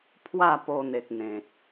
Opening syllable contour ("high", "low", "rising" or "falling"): falling